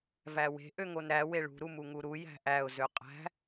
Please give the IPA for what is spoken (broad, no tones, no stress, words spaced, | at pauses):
væwe̤ ʔøŋonɾæ weɭṳ ɾumuŋuɾu jæ̤ʔæʊ̯ zøqʼæ̤